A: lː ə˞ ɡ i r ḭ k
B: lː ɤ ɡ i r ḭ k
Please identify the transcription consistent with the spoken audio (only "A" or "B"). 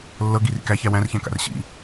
B